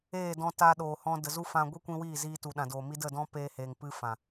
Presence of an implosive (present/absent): present